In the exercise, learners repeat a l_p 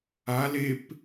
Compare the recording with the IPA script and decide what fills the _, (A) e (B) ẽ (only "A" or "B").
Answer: A